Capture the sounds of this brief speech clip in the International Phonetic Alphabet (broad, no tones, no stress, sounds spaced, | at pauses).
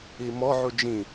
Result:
i m ɔ ʕ u d͡ʒ ĩ